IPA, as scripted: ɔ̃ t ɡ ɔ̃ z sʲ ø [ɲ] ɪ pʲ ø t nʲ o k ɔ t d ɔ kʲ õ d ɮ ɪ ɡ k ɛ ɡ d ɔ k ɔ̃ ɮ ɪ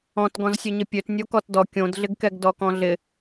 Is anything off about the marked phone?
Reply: no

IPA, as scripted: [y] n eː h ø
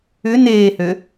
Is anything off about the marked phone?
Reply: yes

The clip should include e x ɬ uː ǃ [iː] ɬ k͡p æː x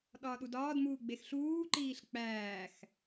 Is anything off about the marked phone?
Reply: no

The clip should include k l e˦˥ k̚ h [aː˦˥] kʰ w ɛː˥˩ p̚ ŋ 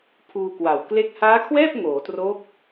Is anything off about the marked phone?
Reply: no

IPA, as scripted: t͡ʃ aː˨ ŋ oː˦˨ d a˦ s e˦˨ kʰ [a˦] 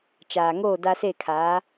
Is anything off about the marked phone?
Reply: yes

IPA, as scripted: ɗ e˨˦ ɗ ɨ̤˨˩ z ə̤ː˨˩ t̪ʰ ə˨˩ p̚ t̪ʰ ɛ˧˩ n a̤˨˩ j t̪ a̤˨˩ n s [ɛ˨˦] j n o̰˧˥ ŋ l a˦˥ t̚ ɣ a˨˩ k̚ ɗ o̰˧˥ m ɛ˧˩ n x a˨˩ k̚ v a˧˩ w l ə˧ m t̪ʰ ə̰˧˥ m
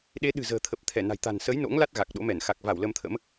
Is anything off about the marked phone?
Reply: yes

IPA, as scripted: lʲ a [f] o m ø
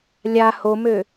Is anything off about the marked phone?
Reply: yes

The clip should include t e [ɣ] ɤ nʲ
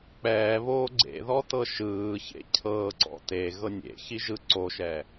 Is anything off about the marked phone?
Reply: no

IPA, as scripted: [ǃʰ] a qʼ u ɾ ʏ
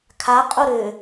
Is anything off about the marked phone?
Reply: yes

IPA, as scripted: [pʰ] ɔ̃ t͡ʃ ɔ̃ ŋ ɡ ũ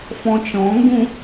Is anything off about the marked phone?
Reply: yes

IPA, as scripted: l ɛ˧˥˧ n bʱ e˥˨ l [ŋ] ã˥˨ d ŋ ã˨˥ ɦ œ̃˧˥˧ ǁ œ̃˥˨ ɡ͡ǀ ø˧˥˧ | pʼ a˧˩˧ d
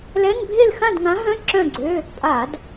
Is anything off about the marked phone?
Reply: yes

